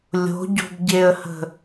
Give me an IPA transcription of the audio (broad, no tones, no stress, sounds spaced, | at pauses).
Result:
lʲ o̤ ɟ o̤ b ɟ e ə̯ h ə̤